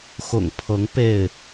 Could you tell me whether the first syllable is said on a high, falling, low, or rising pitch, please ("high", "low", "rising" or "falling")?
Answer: low